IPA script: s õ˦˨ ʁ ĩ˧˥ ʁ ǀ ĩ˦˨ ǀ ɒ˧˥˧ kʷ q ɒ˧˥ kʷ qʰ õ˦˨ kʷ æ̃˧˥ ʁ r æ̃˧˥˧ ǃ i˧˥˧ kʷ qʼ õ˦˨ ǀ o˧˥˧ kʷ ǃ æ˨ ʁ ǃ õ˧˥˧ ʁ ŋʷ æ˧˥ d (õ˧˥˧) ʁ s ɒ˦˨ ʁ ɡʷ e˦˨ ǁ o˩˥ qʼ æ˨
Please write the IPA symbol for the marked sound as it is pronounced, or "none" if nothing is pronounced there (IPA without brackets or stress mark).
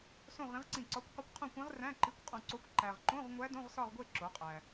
õ˧˥˧